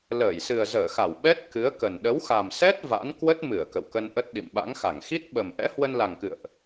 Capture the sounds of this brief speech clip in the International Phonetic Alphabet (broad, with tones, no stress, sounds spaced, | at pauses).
l əː˧˩ j s ɨ˨˩ ə̯ z əː˧˩ x a˧˩ w ɓ ɛ˦˥ t̚ k ɨ˨˦ ə̯ k ə˨˩ n ɗ ə˨˦ w x a˨˩ m s ɛ˦˥ t̚ v a̰˧˥ n k w ə˦˥ t̚ m ɨ˧˩ ə̯ k ə̰˧˨ w k ə˧ n ʔ ə˦˥ t̚ ɗ ḭ˧˨ m ɓ a̰˧˥ ŋ x a˧˩ ŋ x i˦˥ t̚ ɓ ə˨˩ m ʔ ɛ̰˧˥ h w ə˧ n l a˨˩ ŋ k ɨ̰˧˨ ə̯ ʔ